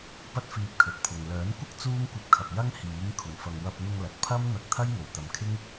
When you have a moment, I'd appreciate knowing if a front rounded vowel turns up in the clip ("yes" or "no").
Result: yes